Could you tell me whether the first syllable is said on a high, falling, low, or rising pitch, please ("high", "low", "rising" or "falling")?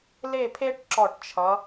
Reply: falling